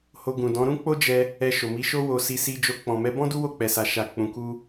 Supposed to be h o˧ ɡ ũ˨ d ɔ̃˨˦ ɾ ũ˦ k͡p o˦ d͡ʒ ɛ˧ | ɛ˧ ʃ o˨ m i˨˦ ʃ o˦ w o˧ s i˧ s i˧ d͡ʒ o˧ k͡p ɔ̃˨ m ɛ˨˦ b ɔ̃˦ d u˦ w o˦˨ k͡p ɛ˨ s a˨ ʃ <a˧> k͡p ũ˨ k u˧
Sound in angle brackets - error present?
yes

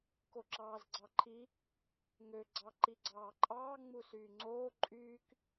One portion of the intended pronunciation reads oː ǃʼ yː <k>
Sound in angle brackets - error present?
no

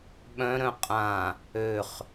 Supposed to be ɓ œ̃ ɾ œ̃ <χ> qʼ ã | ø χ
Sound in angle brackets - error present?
yes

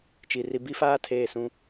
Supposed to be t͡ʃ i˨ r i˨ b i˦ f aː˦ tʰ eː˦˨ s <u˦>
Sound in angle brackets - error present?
yes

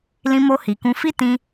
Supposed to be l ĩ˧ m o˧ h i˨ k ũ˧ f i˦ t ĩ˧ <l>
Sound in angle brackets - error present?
yes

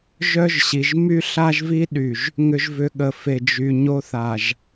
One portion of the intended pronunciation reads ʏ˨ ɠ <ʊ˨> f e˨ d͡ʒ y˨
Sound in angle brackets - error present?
yes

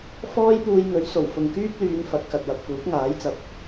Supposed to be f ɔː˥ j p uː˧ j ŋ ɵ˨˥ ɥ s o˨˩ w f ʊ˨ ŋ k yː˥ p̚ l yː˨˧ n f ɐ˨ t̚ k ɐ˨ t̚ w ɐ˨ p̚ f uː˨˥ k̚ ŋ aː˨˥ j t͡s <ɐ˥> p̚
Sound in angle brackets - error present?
yes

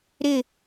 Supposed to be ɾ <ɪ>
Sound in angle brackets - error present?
no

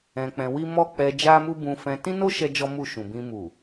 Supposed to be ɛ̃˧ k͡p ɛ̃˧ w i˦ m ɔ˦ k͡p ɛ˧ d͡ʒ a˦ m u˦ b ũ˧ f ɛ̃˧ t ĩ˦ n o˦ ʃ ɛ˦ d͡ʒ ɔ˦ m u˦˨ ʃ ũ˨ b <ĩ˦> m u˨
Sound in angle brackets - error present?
yes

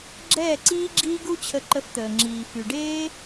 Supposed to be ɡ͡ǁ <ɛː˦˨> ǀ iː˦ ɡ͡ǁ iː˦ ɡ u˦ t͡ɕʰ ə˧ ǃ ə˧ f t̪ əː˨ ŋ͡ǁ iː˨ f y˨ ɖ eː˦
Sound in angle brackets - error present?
no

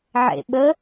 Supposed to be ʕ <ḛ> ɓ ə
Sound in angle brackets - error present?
no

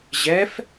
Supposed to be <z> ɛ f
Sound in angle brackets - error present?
yes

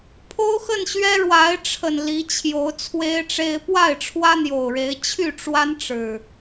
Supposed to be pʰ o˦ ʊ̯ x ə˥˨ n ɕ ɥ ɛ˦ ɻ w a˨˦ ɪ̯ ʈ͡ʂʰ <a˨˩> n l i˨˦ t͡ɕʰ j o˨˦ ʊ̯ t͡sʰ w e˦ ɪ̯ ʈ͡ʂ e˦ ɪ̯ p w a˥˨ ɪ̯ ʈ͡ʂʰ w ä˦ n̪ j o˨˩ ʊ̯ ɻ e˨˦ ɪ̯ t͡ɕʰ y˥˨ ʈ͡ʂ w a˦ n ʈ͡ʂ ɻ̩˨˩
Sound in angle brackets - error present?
yes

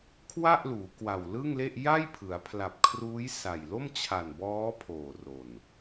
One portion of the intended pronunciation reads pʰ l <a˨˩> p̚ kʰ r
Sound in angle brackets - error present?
no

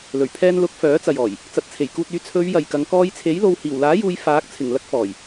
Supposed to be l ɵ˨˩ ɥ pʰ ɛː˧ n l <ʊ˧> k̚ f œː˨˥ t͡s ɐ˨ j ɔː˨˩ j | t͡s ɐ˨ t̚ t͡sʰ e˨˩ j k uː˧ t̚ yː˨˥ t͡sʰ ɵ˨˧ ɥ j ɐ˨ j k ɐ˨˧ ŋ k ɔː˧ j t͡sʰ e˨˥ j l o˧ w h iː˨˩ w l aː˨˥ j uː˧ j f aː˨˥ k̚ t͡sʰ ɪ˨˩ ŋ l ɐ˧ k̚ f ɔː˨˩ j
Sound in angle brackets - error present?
yes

